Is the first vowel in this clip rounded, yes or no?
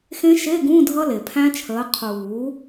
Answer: no